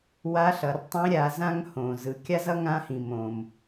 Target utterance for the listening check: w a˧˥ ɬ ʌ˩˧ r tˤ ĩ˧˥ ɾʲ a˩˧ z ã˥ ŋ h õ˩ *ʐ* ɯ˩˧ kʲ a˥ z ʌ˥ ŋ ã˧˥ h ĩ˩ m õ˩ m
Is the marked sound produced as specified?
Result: no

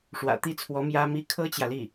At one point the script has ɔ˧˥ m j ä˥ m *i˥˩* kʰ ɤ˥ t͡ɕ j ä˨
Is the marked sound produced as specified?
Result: no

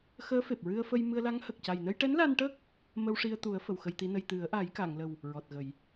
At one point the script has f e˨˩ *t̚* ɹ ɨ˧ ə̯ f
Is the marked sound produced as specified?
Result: no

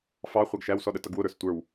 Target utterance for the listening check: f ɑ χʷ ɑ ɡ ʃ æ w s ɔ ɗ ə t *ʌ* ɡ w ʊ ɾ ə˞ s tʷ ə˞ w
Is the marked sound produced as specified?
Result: yes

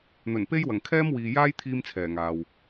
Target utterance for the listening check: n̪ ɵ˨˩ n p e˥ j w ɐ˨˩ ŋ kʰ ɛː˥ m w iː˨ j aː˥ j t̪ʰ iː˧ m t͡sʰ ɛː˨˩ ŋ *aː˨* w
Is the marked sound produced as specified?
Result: yes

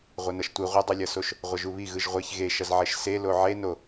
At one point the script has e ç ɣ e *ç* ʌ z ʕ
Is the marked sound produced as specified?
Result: no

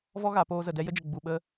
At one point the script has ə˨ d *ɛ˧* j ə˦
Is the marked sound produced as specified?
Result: yes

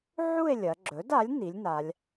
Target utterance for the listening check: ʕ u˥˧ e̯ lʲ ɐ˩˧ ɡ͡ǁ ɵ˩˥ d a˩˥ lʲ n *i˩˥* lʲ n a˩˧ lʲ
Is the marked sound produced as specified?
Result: yes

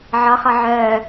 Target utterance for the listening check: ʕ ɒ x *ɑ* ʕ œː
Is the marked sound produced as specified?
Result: no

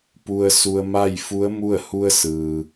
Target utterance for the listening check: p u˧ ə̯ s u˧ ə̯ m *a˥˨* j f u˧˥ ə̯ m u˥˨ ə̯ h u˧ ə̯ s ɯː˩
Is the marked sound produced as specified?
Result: yes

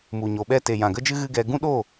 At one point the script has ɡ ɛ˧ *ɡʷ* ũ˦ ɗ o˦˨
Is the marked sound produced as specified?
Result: no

